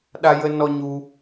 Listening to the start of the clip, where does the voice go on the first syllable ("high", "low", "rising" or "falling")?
high